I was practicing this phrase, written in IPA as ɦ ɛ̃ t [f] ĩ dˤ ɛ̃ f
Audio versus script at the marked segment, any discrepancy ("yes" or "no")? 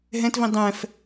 yes